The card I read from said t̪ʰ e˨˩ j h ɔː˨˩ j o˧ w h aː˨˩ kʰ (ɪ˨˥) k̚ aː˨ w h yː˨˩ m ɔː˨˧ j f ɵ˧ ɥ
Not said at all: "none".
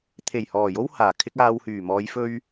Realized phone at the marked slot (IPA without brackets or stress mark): ɪ˧